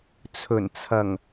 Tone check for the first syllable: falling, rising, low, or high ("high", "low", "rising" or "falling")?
low